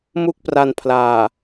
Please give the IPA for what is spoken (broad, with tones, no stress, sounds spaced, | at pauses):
m u˥˩ k̚ p r a˧ n pʰ l aː˨˩